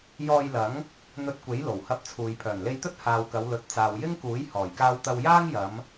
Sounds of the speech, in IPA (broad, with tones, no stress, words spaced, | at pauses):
jɔː˧jlɐ˨˥ŋ | n̪ɵ˧t̚kʷe˨˥j lo˨˩whɐ˧p̚t͡sʰuː˨j pʰœː˨˩nle˧jt̪ɵ˥t̚ haː˨wkɐ˨˧w lɵ˨t̚ t͡saː˨wjɪ˥ŋkuː˨˥j hɔː˨˩jkaː˧wt̪ɐ˧w jaː˥ŋjɐ˨˧m